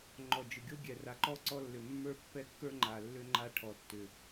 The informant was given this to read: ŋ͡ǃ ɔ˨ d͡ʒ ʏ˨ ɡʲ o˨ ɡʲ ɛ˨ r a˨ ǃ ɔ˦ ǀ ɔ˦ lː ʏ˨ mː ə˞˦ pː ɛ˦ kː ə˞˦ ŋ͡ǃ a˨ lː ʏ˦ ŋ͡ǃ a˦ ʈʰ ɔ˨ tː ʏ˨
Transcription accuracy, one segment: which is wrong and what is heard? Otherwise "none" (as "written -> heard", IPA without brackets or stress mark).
o˨ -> o˦